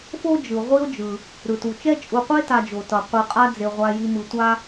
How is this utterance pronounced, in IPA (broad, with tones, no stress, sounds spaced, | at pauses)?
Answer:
f o˥ d͡ʒ ɯ˩ ʁʷ i˦ o̯ d͡ʒ ɯ˩ | ɾ ɯ˩ t u˩ t͡ʃ ɛ˥ t͡ʃʼ u˨ qʷ e˥ t a˨ d͡ʒ o˩ t ʌ˩ qʷ ɯ˨ qʼ a˦ d͡z e˨ ʁʷ a˨ j i˨ m ɯ˨ tʷ a˥